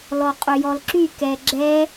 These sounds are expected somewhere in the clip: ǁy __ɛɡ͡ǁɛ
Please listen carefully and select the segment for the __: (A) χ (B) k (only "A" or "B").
B